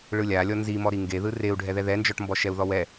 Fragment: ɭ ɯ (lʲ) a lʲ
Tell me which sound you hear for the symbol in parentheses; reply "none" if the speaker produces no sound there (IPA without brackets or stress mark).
lʲ